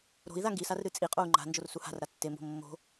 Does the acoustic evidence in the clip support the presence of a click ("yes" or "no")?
yes